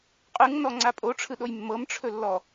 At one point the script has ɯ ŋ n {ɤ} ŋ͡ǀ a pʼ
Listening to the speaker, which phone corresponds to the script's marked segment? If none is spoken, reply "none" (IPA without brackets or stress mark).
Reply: ɔ